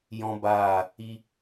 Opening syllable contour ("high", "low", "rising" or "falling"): high